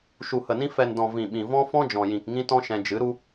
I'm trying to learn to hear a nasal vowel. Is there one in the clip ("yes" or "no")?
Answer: yes